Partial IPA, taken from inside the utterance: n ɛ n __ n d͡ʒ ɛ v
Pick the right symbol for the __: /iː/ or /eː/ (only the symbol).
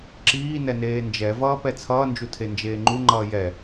eː